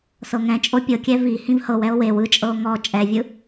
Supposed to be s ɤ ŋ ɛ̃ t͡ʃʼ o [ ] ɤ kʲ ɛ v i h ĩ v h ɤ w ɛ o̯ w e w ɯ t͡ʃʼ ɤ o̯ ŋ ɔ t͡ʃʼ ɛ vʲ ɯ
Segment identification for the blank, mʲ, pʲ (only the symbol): pʲ